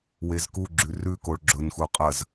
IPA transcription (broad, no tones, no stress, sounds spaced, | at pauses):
w e z k u ɡ͡ǁ ʉ r ʉ k o ɭ ɡ͡ǁ ɵ n x u qʼ ɐ z